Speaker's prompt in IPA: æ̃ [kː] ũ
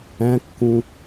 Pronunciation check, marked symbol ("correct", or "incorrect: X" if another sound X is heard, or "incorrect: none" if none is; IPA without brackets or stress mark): correct